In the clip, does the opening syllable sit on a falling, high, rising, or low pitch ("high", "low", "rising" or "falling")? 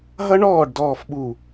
high